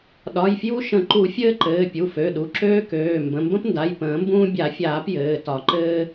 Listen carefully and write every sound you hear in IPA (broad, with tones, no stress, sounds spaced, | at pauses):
ɗ ɒ˩˧˩ j f j u˦ ʃ ə̃˨˩˦ ǃ u˨˩˦ fʲ ɘː˦ ǃ ɘː˩˧˩ pʲ u˩˧˩ f ø˩˧˩ ɗ u˩˧˩ ǁ øː˦ k øː˩˧˩ m b ə̃˩˧˩ m b ə̃˦ p n d a˩˧˩ j p ə̃ː˨˩˦ m b ũː˦ bʲ a˨˩˦ fʲ aː˨˩˦ p j ɘː˩˧˩ t ɒ˨˩˦ ǃ ɘː˦